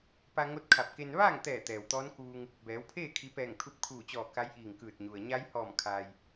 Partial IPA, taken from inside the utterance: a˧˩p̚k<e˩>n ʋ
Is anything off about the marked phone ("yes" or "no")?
yes